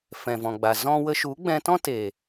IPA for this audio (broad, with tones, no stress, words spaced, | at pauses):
fɛ̃˨vɔ̃˨ɡ͡ba˨ zɔ̃˦ wə˧ʃu˨˦ɡ͡bɛ̃˧ tɔ̃˦teː˨